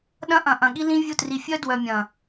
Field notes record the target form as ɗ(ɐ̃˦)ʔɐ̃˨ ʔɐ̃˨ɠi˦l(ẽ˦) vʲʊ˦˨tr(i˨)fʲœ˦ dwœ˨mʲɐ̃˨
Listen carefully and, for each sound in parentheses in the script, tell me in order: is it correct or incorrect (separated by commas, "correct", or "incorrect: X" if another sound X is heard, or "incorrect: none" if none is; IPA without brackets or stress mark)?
correct, incorrect: ĩ˦, correct